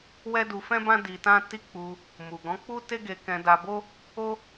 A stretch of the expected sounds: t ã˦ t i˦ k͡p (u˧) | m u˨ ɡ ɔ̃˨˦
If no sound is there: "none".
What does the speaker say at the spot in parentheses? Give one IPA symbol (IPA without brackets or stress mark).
u˧